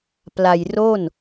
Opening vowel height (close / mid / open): open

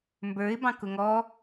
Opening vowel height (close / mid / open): mid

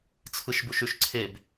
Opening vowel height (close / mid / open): close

